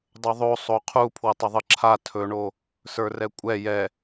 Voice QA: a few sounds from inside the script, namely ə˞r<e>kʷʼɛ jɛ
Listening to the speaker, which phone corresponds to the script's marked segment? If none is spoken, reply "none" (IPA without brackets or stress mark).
ɛ